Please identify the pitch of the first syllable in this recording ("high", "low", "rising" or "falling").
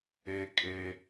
high